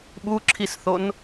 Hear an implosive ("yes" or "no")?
yes